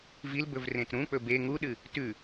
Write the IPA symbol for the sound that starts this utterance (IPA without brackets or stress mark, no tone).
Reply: v